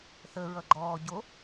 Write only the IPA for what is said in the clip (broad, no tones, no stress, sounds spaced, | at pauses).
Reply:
θ ə ɹ ʌ ɡ͡ǃ ɔː ɟ o